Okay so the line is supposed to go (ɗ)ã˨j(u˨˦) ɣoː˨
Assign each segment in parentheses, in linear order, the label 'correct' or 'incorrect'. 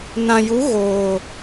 incorrect: n, correct

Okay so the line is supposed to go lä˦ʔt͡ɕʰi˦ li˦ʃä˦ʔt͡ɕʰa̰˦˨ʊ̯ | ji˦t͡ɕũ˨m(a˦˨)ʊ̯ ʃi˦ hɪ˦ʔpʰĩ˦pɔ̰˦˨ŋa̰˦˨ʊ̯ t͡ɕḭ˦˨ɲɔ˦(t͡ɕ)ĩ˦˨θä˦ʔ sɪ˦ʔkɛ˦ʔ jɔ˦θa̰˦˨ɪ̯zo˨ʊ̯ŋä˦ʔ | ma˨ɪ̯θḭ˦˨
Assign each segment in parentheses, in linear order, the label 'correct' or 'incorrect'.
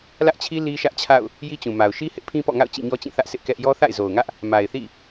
incorrect: a˨, correct

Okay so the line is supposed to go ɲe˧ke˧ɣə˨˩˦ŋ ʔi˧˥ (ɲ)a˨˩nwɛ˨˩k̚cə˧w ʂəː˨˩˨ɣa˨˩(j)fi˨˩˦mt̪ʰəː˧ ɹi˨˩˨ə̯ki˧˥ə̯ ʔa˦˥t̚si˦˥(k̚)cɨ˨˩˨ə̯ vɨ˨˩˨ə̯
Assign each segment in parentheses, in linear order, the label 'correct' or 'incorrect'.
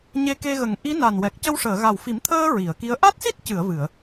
incorrect: n, incorrect: w, incorrect: t̚

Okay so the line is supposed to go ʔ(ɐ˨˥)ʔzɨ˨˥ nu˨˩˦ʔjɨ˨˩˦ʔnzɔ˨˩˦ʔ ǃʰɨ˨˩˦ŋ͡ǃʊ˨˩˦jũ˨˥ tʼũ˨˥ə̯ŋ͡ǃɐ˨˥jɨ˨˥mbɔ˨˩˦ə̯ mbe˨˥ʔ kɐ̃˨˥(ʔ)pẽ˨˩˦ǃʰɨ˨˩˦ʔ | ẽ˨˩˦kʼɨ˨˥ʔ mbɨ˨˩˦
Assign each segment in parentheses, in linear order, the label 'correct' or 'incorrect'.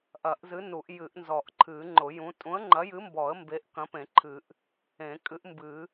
incorrect: ɐ˨˩˦, incorrect: none

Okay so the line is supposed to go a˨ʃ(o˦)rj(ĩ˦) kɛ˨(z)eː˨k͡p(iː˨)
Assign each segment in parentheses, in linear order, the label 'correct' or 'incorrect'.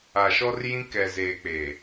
incorrect: ɔ˦, correct, correct, incorrect: eː˨

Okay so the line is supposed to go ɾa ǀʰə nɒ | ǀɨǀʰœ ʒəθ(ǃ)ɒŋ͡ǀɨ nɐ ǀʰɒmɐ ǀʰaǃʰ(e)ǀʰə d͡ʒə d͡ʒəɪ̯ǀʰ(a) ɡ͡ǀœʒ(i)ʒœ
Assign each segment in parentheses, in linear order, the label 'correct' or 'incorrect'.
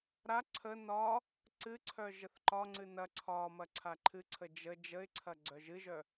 correct, incorrect: ɨ, incorrect: ɐ, incorrect: ɨ

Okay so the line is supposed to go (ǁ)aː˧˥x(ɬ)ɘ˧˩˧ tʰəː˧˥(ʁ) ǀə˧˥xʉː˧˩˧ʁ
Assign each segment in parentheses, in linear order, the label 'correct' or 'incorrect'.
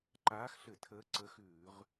incorrect: ǃ, correct, incorrect: none

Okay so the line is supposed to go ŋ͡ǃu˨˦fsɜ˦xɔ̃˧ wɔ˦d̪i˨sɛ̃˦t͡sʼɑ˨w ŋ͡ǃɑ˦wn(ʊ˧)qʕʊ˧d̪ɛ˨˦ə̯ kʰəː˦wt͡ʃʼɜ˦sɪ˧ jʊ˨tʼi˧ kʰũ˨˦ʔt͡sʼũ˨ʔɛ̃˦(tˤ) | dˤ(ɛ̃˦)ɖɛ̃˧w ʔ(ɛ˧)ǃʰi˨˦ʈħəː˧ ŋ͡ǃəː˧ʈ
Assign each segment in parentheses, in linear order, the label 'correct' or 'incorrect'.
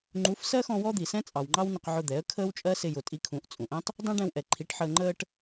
correct, correct, correct, incorrect: ɛ˨

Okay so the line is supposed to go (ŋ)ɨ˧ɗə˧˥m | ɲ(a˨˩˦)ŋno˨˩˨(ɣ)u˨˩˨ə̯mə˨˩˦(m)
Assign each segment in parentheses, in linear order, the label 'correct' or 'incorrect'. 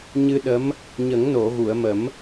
incorrect: ɲ, incorrect: ə˨˩˦, correct, correct

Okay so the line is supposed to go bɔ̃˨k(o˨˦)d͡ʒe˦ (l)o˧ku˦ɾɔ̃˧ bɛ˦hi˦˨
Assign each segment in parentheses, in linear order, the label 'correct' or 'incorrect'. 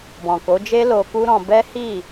correct, correct

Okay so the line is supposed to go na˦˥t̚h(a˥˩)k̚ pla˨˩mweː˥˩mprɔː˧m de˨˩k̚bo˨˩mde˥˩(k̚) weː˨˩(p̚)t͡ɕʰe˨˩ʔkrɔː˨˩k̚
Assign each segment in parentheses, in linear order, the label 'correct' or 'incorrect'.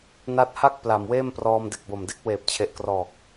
correct, correct, correct

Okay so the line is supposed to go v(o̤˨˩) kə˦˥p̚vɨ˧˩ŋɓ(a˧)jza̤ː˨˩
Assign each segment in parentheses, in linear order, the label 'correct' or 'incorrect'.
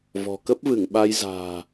incorrect: ɔ̤˨˩, correct

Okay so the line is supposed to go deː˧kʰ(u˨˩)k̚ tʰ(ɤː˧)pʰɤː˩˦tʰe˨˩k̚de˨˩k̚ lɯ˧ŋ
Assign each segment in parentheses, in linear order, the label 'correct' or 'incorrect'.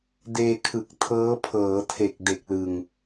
incorrect: ɯ˨˩, incorrect: ɤː˦˥

